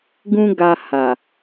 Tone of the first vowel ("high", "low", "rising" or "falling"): high